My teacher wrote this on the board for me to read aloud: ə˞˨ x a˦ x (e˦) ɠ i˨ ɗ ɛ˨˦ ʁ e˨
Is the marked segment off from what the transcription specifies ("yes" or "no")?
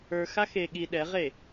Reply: yes